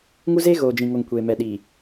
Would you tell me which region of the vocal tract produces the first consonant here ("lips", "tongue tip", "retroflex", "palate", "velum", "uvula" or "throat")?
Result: velum